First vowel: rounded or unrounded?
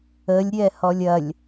unrounded